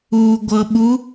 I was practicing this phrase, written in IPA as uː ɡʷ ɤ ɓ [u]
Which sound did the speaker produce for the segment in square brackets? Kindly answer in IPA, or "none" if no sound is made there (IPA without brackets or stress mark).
u